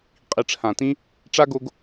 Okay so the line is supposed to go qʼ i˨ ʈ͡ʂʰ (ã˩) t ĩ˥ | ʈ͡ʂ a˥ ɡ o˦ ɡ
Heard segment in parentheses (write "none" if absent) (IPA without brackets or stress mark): ã˩